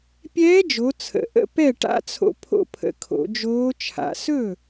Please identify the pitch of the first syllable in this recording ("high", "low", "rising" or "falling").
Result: rising